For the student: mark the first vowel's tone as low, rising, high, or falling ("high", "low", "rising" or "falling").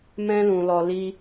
high